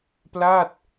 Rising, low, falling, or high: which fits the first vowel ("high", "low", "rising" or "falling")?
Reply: falling